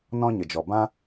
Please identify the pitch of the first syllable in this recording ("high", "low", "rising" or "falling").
high